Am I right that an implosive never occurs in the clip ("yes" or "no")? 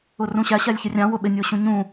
no